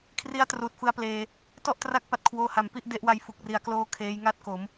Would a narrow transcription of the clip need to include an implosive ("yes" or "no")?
no